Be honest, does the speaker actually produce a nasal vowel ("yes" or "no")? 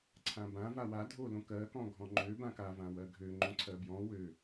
yes